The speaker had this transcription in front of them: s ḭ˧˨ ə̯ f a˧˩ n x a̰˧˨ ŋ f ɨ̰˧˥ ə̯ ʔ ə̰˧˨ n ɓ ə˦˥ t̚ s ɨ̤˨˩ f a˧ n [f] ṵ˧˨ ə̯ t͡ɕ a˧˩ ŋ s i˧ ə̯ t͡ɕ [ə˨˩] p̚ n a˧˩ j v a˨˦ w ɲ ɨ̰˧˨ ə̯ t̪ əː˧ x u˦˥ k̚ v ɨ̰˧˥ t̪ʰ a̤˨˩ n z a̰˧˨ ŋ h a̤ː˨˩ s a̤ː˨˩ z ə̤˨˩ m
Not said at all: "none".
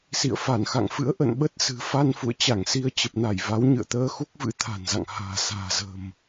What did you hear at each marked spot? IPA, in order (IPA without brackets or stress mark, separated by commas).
f, ə˨˩